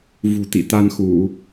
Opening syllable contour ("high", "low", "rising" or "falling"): low